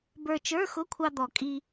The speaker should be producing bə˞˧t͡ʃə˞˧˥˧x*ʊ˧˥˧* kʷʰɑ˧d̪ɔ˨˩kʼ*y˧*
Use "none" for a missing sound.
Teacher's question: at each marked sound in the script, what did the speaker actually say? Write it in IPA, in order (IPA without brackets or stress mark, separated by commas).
ʊ˧˥˧, i˧